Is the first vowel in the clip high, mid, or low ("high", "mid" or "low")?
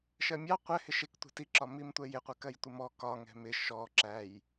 mid